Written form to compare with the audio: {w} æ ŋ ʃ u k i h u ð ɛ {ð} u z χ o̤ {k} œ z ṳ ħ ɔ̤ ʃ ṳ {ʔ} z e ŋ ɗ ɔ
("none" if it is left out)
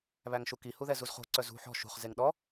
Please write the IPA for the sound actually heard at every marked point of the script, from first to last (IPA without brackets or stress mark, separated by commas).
β, z, ǀ, χ